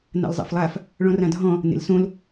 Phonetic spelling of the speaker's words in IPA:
na̰lzˤa̰flˠaf | ɭɔ̃rãdʱɔ̃ | nḛlsõl

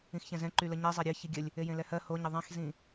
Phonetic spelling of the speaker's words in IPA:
ĩxçɛ̃zɛ̃ ǃyləɲe zˤɛɾʲɜ çiɡʲəlʲ | ejẽlɛhɜ hoɲɪ ðˤɛ̃xzĩ

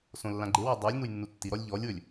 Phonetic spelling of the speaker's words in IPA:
sõlːãɡ͡ǃewe dˤulʲnuj nːutːiɾɔlʲ ʎɔlʲwɵlʲ

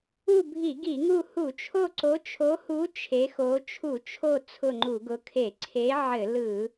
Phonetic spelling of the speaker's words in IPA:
u˦˨bʱi˧˩˧ɡi˧˩˧ŋu˦˨ hu˧˩˧t͡ʃʰo˦˨ǀo˨˦ t͡ʃʰo˨˦hu˨˦ t͡ʃʰe˨˦xo˨˦ t͡ʃʰu˧˩˧t͡ʃʰo˦˨ t͡sʰʊ˦˨ŋ͡ǃu˧˩˧ɡʊ˨˦kʰe˧˩˧ ǀʰe˨˦ ʕɘ˧˩˧lɯ˧˩˧

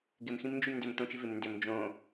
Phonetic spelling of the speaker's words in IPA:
ɡɪm xĩmnd͡ʒymndʏm t̪õt͡ʃɪvɪm ndʏm d͡ʒõ

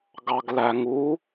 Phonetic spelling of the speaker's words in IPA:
ɡɑɡlæŋu

